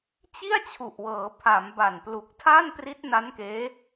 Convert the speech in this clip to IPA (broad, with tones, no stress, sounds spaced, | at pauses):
t͡ɕ i˥˩ a̯ t͡ɕʰ u˨˩ ʔ w ɤː˩˦ pʰ a˩˦ m b a˨˩ n p l u˨˩ k̚ tʰ aː˥˩ n p r i˦˥ t̚ n a˦˥ n k eː˦˥